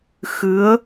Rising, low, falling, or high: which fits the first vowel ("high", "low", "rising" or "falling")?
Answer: rising